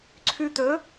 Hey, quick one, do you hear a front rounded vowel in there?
yes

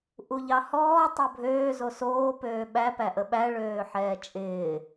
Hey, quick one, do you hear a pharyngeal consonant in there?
yes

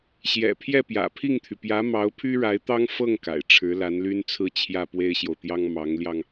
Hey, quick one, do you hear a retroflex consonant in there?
yes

